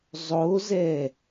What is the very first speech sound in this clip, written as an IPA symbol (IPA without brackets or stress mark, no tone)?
zˤ